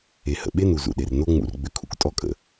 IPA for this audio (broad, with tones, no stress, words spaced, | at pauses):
e˧ hə̰˨ɓe˦nu˨ zṵ˨ɗe˨r no˦ ŋ͡mṵ˧rɡ͡bʏ˧kʰṵ˦k tʼɔ˦kʼə̰˨